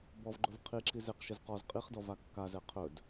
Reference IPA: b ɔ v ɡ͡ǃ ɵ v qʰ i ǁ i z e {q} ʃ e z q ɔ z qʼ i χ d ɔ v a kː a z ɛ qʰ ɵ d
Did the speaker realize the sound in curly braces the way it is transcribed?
yes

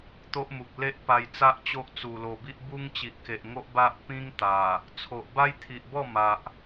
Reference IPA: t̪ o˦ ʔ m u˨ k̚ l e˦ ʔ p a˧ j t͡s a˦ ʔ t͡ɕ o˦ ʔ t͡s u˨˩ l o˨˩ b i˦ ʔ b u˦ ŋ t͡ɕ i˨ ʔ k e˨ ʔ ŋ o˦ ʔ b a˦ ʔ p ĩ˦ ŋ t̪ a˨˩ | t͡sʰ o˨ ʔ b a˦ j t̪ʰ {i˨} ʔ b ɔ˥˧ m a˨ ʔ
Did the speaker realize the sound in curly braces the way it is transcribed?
yes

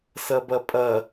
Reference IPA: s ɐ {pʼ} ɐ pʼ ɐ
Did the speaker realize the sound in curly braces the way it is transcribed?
no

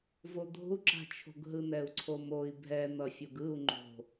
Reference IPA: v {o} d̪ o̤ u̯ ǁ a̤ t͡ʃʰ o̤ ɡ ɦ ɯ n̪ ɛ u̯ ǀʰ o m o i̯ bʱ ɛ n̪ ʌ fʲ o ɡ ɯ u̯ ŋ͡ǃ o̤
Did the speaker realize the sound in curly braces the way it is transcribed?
yes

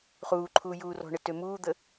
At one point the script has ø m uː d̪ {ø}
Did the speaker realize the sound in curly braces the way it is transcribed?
no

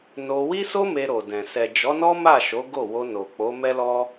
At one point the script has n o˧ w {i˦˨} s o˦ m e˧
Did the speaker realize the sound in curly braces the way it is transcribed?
no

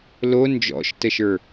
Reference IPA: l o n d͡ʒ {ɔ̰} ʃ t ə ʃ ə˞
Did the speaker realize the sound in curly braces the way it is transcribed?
yes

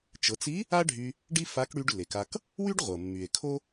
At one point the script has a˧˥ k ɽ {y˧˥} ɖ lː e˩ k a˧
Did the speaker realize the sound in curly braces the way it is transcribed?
no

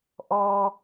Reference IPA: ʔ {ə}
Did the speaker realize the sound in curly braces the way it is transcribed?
no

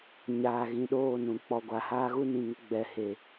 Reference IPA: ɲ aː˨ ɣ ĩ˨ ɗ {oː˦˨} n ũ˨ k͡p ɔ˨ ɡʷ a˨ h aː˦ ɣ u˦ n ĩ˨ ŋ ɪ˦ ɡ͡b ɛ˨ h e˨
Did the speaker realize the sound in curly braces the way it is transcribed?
yes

